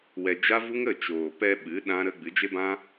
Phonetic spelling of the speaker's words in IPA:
w ɛ˧ d͡ʒ a˦ v u˦ ŋ ə˦˨ t͡ʃ oː˨ p ɛ˧ ɓ ɨ˨˦ ɗ ã˦ ɾ ə˦ ɡ͡b ɨ˨˦ d͡ʒ e˦ b ã˦

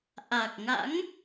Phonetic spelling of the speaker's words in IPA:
ʔ a˨˩ k̚ ŋ a̰˧˥ ŋ

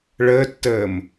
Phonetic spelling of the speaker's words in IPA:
ɭ əː tː əː m

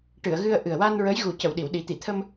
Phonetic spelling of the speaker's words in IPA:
ʈ ɨ˨˩˨ ə̯ ɣ ɨ˧ ə̯ ʔ ɨ˨˩ ə̯ w a˧ n ɹ ə˧˥ j ɣ u˨˩ c ə˨˩˨ w ɗ i˨˩˨ w ɗ i˨˩˦ t̪ i˨˩˨ t̪ʰ ə˧ m

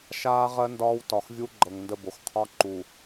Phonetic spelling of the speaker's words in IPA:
ʃ aː˦ ʁ ɜ˦ n d ɒː˦ w t ɒ˨ x vʲ u˦ ɡ͡ǃ ɤ˨ ŋ n d ə˦˨ b o˨ x qʰ ɒ˦ ǃ u˨

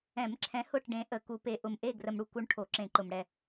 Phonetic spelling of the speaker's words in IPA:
ɛ̃˨˩˦ m ǁʰ ɛ̃˨˥ h ʊ˦˨ ʈ ɖ ẽ˨˥ ʔ ə˨˩˦ k u˨˥ p e˨˥ ʔ ʊ˨ m ʔ e˦˨ ɡ r ə˨ m ɽ u˨ k u˨˥ ɳ ʈʰ o˨˩˦ ǁ ẽ˨˩˦ ǃ ʊ˨ m ɽ ɛ˦˨

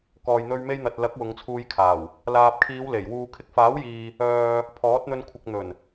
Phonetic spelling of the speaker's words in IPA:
k ɔː˨ j n̪ ɵ˧ ɥ m e˧ j n̪ ɐ˨ t̚ l ɐ˨˥ k̚ w ʊ˨˧ ŋ t͡sʰ uː˧ j kʰ aː˨˩ w | l aː˨ p̚ kʰ iː˨˧ w l e˨˩ j w uː˨ kʰ ɪ˧ k̚ f aː˨˥ w j iː˨ | œː˨ | pʰ ɔː˨˥ t̚ n̪ ɵ˧ n kʷʰ ɪ˨ k̚ n̪ ɵ˨˩ n

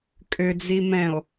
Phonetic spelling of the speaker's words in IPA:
kʼ ʏ d͡z i m ɛ̃ o̯

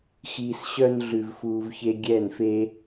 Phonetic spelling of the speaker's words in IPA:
x iː˧ s ɕ œ˦ n ɮ ʉ˧ v f uː˧ v ç e˦ ɡʲ ɛː˦˨ n f e˦

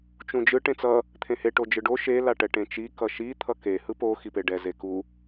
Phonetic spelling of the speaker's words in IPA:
t͡ʃ ũ d͡ʒ ɯ ʈ ẽ t͡s ʌ | t̪ʰ ẽ h e ʈ o d͡ʒ ɯ ɖ o ʃ e l a ʈ ɛ ʈ ẽ t͡ʃ i k ʌ ʃ i t̪ʰ ʌ k e h ɯ p o x i p e ɖ ɛ z e k u

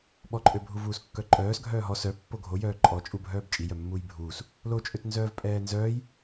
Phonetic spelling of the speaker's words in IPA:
ɓ ɔ ǃʼ ø bʱ u v uː s kː œ ǃʼ œː s ɡʱ œː ɦ ɔ s œ pː o ɡʱ o j œː ǃʼ ɔ t͡ʃʼ u bʱ œː b t͡ʃʼ i j œ mː uː j bʱ uː s | l o t͡ʃʼ ø t n z œː v pʼ ɛː n z œː j

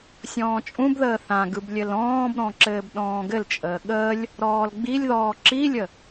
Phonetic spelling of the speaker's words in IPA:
sʲ ɔ̃ː t͡ʃʼ ũ b ð əː θ ã ɡ ɯ b lʲ ɘ l ɔ̃ː b ɾ ɔ̃ ǁ ɘː b ɗ ɔ̃ː ɡ ɘ l t͡ʃʼ əː ɠ əː lʲ | ɾ ɔː l ɡ͡b i lʲ ð ɔː ǁ i lʲ ə

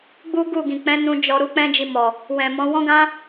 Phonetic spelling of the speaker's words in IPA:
ɡ͡b u˦ ɡ u˦˨ ɡ ĩ˨ k͡p ɛ̃˨˦ n ũ˧ d͡ʒ ɔ˨ ɾ u˨˦ k͡p ɛ̃˦ d͡ʒ i˧ m ɔ˨ | w ɛ̃˨ m ɔ̃˨˦ w ɔ̃˦ ɡ ã˦

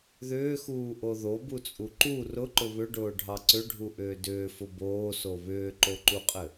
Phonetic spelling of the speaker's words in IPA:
ð ʏː x uː ʔ o ð o b u t͡sʼ u ǃ u r ʊ ǃ ʊ β ʏ ɖ ʊː ɖʱ ɑ ǀ ʏ ɖʱ u ʔ ʏː d ʏː f ʊ b oː s o β ʏː ǃ o ǃ u qʼ ɘ

